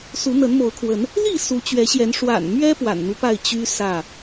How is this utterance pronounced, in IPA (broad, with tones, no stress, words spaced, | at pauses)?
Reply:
su˨˦n̪ə˨˦nmo˨˦ʊ̯kʰwə˨˦n | li˥˨ su˨˦t͡ɕɥɛ˨˦ɕjɛ˨˦n ʂwa̰˨˩nmɥɛ˦ pwa̰˨˩nn̪u˦pa˥˨ɪ̯ t͡ɕy˦ sä˥˨